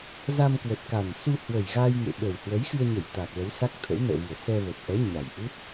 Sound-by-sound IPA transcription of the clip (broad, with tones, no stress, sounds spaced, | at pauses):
z a˧ m k w ə˨˩ t̚ k a˨˩ n s u˧ h w ə˨˩ j ɣ a˧ j ŋ ḛ˧˨ ɓ ə˨˩ w h w ə˨˦ j x ɨ˧ ə̯ ɲ ə˧˩ j t̪ a˨˩ k̚ l ə˨˦ w s a˦˥ k̚ t̪ʰ ə̰˧˥ w n ə̰ː˧˨ v ɨ˨˩ ə̯ s ɛ˧ v ə˨˩ t̚ ʔ ɛ˨˦ ɲ a˨˩ j ʔ u˦˥ t̚